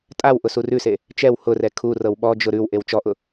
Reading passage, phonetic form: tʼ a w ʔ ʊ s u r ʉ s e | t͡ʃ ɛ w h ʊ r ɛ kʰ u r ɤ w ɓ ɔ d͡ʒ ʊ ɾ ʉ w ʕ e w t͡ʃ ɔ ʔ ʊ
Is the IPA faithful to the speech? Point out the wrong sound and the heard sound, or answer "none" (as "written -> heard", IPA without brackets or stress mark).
ʕ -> ʔ